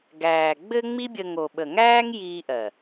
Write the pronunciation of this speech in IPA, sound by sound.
ɡ æː˨ ɡ͡b ɘ˦ ŋ͡m i˦ bʲ ə˧ ŋ o˨ ɓ ə˨ ŋ æː˦ ŋ j iː˧ ʔ ɜ˨

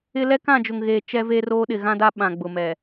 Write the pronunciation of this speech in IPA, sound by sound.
ɪ˦ l ɛ˦ k ã˦˨ d͡ʒ ʊ˨ ŋ ɣ eː˨ t͡ʃ ɛ˦ v e˦ r oː˦ ɗ ɪ˨ ɣ ã˦ d a˦ ɓ ã˨ ɡ͡b ʊ˨ m ɛ˨

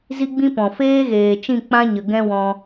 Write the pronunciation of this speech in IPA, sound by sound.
z i˦ ɡ͡b ĩ˦ p ɔ̃˨ f eː˦ ɣ eː˨ t͡ʃ ĩ˦˨ k͡p ã˦ ɲ ə˨ ɡ ɛ̃˦ w ɔ̃˧

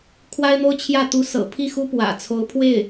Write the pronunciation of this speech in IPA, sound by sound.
kʰ w a˥ ɪ̯ n̪ o˥ ʊ̯ t͡ɕʰ j ä˥˩ t̪ u˧˥ s ɤ̰˨˩ pʰ i˥˩ x u˥ p w ä̰˨˩ t͡sʰ o˧˥ ʊ̯ pʰ w e˥˩ ɪ̯

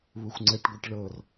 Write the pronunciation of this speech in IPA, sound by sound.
β u xʷ ŋ͡ǀ ɛ ʈ ɡʷ ɛ ʈ ɭ ɤ r

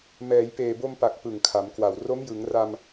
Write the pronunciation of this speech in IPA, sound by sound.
m ɛː˩˦ j p eː˨˩ b o˧ m p a˨˩ k̚ p ɯ˨˩ ŋ kʰ a˩˦ m k w a˨˩ w r o˦˥ m j ɯ˩˦ ŋ r a˧ m

